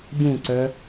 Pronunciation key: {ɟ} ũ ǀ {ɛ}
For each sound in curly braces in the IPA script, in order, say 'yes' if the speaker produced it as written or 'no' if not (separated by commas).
yes, no